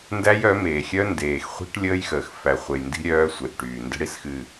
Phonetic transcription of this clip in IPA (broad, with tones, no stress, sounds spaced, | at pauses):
n d æ˦ j œ˨˦ m eː˨ xʲ œ˦ n d eː˨ x χʷ i̤˦ ʈ lʲ əː˦ j x əː˨ x f æ˨ χʷ e˨ j n d i̤˦ ɾʲ œː˦ sʷ e˨ ʔ ʈ yː˨ n d ə̤˦ ɽ i˦ s x ɨ˦˨